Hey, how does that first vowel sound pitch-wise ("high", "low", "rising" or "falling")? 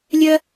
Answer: high